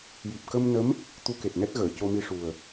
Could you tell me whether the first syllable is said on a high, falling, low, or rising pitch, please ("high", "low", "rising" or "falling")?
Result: low